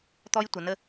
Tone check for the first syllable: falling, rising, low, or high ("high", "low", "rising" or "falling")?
high